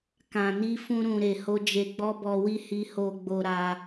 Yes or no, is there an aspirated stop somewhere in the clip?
no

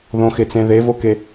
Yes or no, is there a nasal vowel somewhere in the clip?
yes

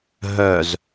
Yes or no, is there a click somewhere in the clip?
no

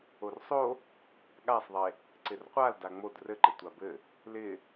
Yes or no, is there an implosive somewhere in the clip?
yes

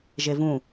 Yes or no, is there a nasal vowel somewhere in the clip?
yes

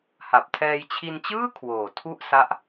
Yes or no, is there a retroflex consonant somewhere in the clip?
no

